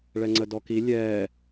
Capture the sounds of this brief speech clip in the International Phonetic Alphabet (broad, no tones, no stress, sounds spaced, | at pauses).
ɭ ɛ ŋ͡ǀ ə d ɔ k i lʲ ɛː